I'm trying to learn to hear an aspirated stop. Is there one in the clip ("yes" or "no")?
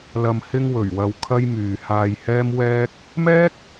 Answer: yes